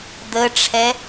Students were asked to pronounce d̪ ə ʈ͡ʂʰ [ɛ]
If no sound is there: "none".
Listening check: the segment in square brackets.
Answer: ɛ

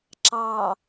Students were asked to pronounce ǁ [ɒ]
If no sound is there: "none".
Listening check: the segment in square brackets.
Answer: ɑ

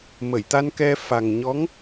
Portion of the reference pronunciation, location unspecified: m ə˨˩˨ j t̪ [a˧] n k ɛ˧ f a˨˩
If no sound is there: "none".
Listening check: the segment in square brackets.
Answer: a˧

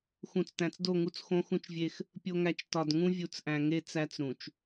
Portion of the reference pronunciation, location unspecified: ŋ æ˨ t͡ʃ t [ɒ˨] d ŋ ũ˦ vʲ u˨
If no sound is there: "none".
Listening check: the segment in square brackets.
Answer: ɒ˨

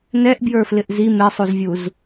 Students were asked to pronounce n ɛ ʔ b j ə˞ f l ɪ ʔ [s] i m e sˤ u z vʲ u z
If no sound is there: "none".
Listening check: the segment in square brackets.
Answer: z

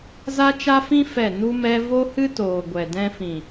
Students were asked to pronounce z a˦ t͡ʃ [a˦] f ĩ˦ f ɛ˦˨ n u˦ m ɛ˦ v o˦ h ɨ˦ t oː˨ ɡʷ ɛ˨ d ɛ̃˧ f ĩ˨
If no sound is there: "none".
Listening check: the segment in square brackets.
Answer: a˦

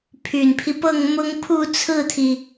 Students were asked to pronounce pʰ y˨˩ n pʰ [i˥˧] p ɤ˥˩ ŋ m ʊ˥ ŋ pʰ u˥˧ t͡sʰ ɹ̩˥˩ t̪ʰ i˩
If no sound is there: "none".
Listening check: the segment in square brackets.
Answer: i˦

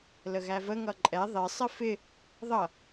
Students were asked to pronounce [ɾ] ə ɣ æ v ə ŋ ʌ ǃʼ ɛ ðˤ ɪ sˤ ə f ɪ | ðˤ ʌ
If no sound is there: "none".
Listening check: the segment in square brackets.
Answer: l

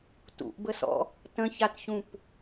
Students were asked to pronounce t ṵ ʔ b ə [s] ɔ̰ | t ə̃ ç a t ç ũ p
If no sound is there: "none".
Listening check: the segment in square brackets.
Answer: s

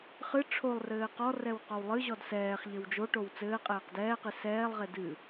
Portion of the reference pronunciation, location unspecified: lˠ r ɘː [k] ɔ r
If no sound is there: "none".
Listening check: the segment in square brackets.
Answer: q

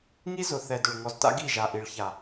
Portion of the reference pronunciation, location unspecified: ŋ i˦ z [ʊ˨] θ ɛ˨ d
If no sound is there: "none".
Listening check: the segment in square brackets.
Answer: ʊ˨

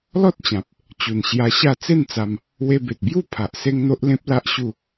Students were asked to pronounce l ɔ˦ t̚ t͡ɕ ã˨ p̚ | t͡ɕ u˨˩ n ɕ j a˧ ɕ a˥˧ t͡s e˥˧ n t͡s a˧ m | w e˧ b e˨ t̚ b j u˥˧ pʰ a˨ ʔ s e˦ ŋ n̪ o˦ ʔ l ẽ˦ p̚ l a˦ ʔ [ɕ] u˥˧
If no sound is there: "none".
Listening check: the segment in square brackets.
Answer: ɕ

